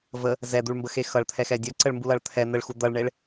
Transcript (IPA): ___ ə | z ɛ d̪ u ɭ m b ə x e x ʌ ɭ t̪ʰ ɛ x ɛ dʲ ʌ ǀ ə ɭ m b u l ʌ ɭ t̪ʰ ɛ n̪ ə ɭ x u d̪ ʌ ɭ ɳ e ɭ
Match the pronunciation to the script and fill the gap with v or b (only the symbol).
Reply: v